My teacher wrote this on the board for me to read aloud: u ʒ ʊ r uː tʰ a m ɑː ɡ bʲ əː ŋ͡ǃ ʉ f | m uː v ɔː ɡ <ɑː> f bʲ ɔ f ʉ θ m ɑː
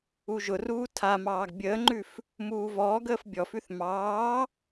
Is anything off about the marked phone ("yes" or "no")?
yes